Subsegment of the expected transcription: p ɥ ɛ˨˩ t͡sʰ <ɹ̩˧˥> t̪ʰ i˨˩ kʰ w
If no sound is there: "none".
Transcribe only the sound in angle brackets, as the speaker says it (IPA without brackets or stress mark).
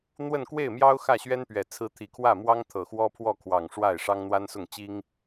ɹ̩˧˥